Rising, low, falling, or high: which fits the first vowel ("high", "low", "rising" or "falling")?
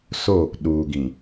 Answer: falling